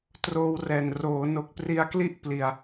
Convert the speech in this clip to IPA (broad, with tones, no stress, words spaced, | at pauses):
troː˧wrɛː˨˩n roː˩˦no˨˩k̚pri˧a̯kli˥˩ʔ pli˧a̯